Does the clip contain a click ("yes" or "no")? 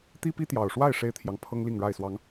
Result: no